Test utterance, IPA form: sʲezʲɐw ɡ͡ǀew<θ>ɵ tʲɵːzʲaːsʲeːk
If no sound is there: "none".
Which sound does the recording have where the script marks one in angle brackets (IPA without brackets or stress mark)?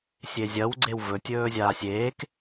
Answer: v